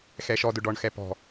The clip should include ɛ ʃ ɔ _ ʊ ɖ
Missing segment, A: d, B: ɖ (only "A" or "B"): A